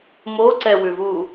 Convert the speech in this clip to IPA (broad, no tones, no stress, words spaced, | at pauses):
moǀɛwʉvu